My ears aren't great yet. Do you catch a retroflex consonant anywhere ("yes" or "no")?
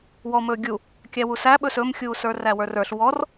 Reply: no